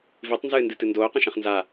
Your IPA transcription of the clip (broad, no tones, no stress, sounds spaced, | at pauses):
v i tˤ n z ɨː n d ɨ t ɨ n d oː q ɐ̃ ʃ ɐ̃ χ n z a